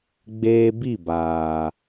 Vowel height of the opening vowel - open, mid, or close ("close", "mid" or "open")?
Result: mid